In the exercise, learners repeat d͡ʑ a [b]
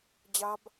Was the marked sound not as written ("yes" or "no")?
no